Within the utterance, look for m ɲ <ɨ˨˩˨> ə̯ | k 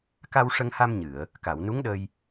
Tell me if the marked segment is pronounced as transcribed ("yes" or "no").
yes